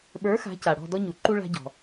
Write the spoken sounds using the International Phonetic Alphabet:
ɓə˞˨˥ xa̤˨˥ca˩ ɽɔ̤˦˨dɔ˦ɲu˩ǃu˦ ɭa̤˦ɟɔ̤˩

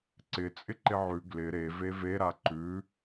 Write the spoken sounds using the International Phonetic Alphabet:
ǀɪ t͡sʼɪǃɪʕʉ ɡlɪ ɾe veve ɾaǃʉ

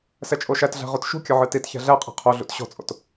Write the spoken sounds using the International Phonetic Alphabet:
sɛt͡ʃʼoʃætɮæ̤ ʁotʃṳkʲɵ ʕɨtitçæ̤ ɮæqʼɛ̤ qʰoɮṵt ɕɔ̤t͡sʼo̰t

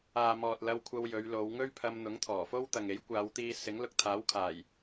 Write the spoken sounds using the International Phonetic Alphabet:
aː˨mɔː˨t̚ lɐ˧wkʷʰɐ˧w jɵ˨˧ɥlo˨˧wŋɵ˥ɥ pʰɐ˧m n̪ʊ˨˥ŋt̪ʰɔː˨˩fo˥w t̪ɐ˨ŋe˨˥jkʷaː˨˧wt̪iː˧ sɪ˨˥ŋlʊ˧k̚t̪ʰaː˨˥wkʰaː˨˩j

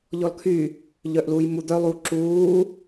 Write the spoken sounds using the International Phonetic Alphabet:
ʎɔlkʰy | ʎœʔluːjmu d̪œ lˠu ǁuː

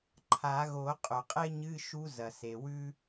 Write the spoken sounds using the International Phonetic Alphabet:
ǃʰa˨˩˦ɣo˨˩˦ qʼɵ˩qʼe˥ ɲɨ˧˥˧ʃu˧˥ zɐ˩se˩ wʉ˥

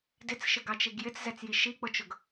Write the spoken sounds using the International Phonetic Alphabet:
dɪt͡sʃɪɡɑt͡ʃiɡ jɪt͡szɛt͡sji ʃik͡pʊt͡ʃʊɡ

